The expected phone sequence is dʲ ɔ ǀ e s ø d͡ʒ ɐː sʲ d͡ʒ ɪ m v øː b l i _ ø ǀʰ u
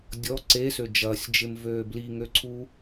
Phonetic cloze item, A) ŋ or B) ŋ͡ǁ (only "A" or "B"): A